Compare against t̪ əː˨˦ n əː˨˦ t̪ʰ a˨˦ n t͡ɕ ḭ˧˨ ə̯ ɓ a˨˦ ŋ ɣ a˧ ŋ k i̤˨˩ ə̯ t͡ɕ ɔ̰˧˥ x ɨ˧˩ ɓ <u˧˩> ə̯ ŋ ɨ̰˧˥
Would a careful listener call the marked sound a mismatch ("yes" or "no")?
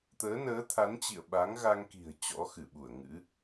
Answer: no